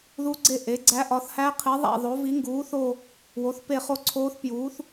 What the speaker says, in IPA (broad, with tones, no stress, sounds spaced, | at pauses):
ð u˧˥ ɡ͡ǀ e˦˨ ʔ e˩˥ ɡ͡ǀ æ˧˥ ʔ ɒ˩˥ θ h æ˧˥ qʰ i˩˥ ðˤ æ̰˦˨ ðˤ o˩˥ v i˩˥ ŋ ɡ uː˩˥ θ o˦˨ | w o˩˥ θ p e˦˨ χ o˦˨ ǀʰ oː˧˥ θ p j uː˩˥ θ